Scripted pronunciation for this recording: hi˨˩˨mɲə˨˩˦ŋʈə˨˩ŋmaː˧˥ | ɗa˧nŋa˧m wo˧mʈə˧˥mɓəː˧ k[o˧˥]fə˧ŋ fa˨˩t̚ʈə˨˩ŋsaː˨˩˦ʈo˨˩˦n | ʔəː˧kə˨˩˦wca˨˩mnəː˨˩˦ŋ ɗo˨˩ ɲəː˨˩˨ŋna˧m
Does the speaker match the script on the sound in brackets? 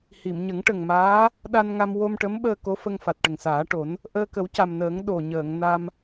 yes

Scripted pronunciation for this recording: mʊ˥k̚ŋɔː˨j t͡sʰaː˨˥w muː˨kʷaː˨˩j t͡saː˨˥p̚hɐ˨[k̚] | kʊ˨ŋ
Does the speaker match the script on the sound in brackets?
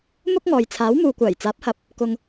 no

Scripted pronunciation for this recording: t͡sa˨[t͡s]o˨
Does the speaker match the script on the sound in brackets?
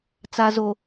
no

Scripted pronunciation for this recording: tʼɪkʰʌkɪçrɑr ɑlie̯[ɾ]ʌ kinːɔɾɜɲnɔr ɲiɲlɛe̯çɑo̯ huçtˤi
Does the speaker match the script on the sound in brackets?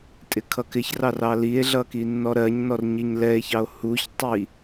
no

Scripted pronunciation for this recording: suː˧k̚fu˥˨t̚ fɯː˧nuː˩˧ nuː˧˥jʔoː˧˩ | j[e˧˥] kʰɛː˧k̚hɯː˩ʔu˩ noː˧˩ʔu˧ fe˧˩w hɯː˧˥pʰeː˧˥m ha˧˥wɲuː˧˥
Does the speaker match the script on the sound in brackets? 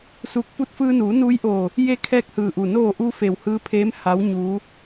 yes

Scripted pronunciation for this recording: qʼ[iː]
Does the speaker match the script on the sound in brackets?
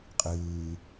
no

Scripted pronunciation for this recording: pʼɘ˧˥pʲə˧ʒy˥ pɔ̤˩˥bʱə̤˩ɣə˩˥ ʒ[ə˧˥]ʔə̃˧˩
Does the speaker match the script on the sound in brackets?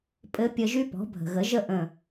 no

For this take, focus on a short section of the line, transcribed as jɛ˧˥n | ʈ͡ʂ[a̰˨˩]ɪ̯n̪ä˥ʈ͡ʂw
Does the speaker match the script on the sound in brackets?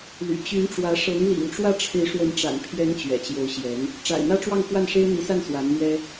yes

